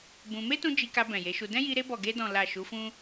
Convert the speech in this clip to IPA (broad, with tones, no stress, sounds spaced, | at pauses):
b ũ˧ m e˦ t ũ˧ d͡ʒ i˧ k a˧ b ɛ̃˨ j e˨˦ ʃ u˧ d ɛ̃˦ j i˧ ɾ e˧ b ɔ˨ ɡ e˧ d ɔ̃˨ l a˨ ʃ u˨˦ f ũ˦